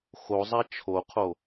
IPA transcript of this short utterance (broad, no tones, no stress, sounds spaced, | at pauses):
x o zˤ æ t͡ʃʰ o qʰ o